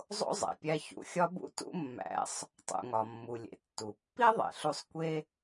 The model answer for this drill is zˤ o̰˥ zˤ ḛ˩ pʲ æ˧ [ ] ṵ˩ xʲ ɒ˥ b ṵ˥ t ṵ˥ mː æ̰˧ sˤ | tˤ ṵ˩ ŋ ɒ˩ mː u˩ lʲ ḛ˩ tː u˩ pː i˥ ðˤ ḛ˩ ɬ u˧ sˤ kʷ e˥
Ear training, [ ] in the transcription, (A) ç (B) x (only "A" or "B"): A